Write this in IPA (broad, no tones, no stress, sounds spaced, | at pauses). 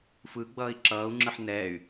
f ɯ ɡ͡b ʌː i̯ ǁ ʌː u̯ ŋ͡ǁ ɯ ħ n ɛː y̯